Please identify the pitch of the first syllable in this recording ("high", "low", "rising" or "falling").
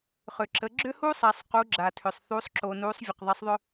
low